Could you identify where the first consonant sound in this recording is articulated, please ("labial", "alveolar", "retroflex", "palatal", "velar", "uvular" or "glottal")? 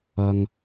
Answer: velar